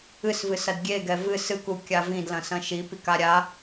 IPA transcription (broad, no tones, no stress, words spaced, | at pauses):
ɨsvɨsɐd ɡʲeɡɛ vɨ sɨkukʲa vĩdlɐ̃sɐ̃ ʃipika ɾʲa